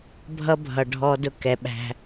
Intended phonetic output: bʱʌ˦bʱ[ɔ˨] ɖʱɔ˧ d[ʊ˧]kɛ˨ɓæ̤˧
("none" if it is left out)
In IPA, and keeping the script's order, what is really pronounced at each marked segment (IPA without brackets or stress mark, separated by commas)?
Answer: ʌ˨, ʊ˧